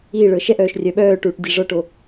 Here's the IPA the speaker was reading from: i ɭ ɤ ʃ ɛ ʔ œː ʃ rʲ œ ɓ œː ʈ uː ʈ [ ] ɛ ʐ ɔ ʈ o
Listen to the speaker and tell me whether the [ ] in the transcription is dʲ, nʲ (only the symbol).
dʲ